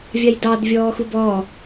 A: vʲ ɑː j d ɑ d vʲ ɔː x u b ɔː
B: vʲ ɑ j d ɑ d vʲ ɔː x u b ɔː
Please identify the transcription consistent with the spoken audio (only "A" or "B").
B